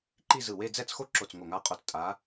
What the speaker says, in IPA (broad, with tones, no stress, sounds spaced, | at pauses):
ǃ i˥˧ z ɯ˧˩ w e˥˧ d͡z ɛ˥˧ t͡s x o˥˧ ǁ o˧˩ t͡s ŋ o˧˩ ŋ a˧˥ qʼ o˧˩ t͡s tʼ a˧˥